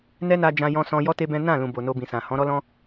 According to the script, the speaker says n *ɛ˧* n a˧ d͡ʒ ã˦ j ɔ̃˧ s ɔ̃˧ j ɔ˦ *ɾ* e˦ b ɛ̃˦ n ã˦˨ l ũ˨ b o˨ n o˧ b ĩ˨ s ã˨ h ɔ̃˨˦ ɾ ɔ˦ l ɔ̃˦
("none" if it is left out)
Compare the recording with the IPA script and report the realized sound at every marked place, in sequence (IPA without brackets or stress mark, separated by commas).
ɛ˦, t